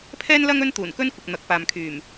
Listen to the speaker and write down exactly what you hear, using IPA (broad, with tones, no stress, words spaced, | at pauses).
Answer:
pʰɛː˥nlɐ˥ŋ ɵ˥nt̪uː˨˩nkɵ˥nkʷɪ˨k̚ n̪ɐ˨˥k̚paː˨mkʰyː˨˩m